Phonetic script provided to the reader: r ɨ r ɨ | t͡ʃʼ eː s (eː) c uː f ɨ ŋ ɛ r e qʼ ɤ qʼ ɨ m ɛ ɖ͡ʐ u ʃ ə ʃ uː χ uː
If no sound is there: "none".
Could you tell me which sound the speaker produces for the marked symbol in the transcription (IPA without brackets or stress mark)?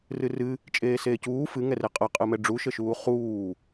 eː